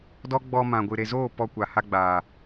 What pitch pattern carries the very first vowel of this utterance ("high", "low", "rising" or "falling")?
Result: high